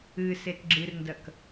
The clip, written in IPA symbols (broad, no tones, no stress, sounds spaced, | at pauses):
ɨ s e t ɡ͡ǁ ɨ r n d ɐ k